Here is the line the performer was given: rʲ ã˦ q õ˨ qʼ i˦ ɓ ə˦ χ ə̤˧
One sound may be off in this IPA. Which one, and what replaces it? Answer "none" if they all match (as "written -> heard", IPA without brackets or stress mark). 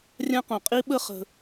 none